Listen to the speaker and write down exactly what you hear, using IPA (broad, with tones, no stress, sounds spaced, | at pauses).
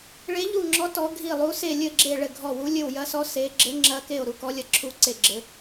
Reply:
ɭ e˧˥ ʎ u˦˨ ŋ͡ǁ ɔ˧˥ t ɔ˧˥ ɡʱ i˦˨ lˠ u˧˥ s e˦˨ lʲ ɘ˦˨ ɡ͡ǁ e˦˨ ɭ ɘ˦˨ ɡʱ ɔ˦˨ w u˧˥ lʲ ɘ˦˨ w j ɐ˧˥ s ɔ˧˥ s e˧˥ ɡ͡ǁ ɘ˧˥ ŋ͡ǁ ɐ˧˥ k e˦˨ o̯ ɾ u˦˨ k ɔ˧˥ lʲ ɐ˧˥ ǁʰ u˧˥ ǀ e˦˨ ɡ͡ǁ ɘ˧˥